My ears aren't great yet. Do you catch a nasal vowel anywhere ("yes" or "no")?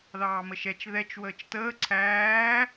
no